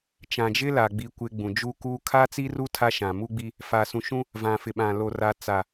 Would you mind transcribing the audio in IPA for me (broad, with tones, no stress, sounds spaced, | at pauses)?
t͡ʃ ã˨ d͡ʒ ɪ˦ l a˨ ɡ͡b i˨ kʷ ɪ˨ ɡ͡b ũ˨ d͡ʒ u˦ k uː˦ kʰ a˦ t͡s i˦ r u˦ tʰ a˦ ʃ ã˨ m u˦ ɡ͡b i˦ | f a˨ s ũ˨ ʃ ũ˦ | v ã˨ f ɪ˨ ɓ ã˨ l o˨ r a˨ t͡s a˨